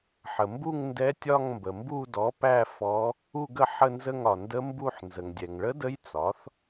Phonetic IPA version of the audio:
ħ ə˩ m b u˦˨ ŋ n d ɛ˧˥ tʲ ɒ˦˨ ŋ m b ə˩ m b u˦˨ d ɔ˩˥ p æ˦˨ f ɔ˧˥ | u˦˨ ɡ ə˦˨ ħ ə˦˨ n z ə˦˨ ŋ ɒ˩ n d ə˧˥ m b u˦˨ ħ n z ə˩ ŋ dʲ ɛ˩ ŋ ɭ ə˧˥ d ə˧˥ j t͡s ɒ˩˥ θ

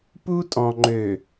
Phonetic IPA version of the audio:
p u˦ tʼ ɔ̃˨ ŋ͡ǃ ø˨

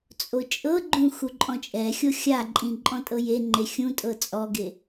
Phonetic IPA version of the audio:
t͡sʼ o t͡ʃʼ ɤ ɡ͡ǃ ũ x u ǃʼ ɔ̃ t͡ʃʼ ɛ xʲ o xʲ a ǃʼ ĩ ǃʼ ɔ̃ tʼ ɤ j e ŋ͡ǃ e xʲ ũ tʼ ɤ t͡sʼ ɔ ɡ e

